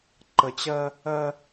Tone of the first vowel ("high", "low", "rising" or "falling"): low